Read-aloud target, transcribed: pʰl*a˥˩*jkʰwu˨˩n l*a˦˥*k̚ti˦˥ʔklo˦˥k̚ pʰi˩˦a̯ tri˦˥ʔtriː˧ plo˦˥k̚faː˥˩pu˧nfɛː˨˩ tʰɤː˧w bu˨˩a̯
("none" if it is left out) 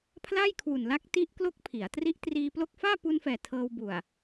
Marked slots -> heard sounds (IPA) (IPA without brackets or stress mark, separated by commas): a˥˩, a˦˥